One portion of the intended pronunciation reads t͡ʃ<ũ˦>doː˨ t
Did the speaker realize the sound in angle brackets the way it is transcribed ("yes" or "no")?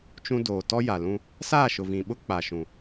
yes